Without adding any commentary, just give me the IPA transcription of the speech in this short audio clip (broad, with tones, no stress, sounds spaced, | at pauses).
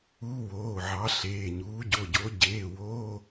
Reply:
uː˧˥˧ w oː˩˧˩ ʕ ɑ˨˥ ɬ eː˩˧˩ ɲ uː˨˥ ɟ o˩˧˩ ɟ o˨˥ ɟ eː˩˧˩ w oː˧˥˧